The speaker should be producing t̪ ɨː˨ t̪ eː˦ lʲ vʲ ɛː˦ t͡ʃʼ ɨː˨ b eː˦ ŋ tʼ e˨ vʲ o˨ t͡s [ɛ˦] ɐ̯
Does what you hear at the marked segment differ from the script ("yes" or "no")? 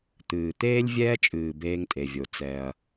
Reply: no